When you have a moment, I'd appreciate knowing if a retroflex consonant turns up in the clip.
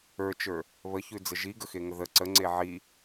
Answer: no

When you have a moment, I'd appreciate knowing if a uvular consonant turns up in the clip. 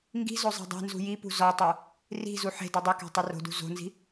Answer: no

